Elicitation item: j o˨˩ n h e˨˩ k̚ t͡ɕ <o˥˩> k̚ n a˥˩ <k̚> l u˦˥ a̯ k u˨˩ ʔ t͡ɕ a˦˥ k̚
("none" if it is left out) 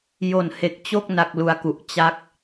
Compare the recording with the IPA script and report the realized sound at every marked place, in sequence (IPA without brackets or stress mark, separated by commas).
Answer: o˥˩, k̚